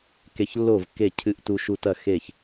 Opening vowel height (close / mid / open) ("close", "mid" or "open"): mid